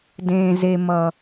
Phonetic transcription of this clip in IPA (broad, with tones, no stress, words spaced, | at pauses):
dẽː˨ze˨ mʌ˨